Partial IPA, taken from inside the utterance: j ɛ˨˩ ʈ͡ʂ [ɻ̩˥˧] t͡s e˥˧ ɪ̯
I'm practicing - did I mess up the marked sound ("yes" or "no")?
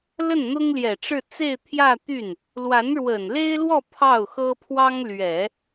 no